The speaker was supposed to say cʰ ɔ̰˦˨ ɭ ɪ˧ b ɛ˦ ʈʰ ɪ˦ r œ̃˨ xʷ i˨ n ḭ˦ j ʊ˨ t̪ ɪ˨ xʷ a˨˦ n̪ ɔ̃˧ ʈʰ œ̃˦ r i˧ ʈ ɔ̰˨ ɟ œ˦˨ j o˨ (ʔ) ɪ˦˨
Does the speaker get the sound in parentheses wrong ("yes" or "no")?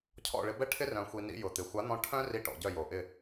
no